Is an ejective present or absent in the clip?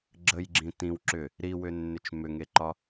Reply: absent